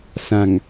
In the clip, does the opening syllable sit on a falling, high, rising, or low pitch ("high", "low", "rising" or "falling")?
low